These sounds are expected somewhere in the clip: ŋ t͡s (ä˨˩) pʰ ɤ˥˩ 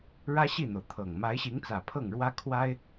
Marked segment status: correct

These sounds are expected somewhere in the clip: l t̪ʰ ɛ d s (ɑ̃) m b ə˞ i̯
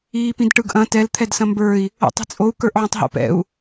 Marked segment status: incorrect: ɐ̃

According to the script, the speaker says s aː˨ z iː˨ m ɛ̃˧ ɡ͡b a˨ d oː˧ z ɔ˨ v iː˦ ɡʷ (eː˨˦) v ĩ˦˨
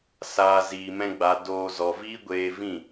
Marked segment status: incorrect: eː˧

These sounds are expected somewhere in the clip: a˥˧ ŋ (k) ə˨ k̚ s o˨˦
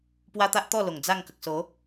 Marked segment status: correct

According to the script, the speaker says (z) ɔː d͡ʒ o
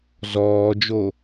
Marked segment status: correct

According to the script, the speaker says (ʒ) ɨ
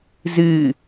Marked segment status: incorrect: z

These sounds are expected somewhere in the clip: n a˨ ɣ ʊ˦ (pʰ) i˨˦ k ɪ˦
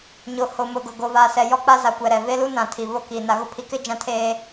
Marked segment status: correct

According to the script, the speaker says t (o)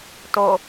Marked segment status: correct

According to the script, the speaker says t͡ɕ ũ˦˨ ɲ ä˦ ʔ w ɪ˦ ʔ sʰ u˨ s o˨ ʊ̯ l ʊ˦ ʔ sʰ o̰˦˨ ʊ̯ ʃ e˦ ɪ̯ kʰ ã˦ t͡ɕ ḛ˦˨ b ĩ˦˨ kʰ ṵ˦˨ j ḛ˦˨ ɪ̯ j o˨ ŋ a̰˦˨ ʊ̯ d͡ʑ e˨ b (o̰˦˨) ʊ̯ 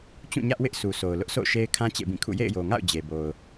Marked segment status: incorrect: o˨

